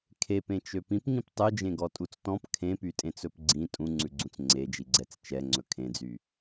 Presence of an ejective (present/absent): present